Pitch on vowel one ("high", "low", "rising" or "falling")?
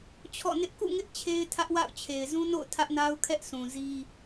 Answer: falling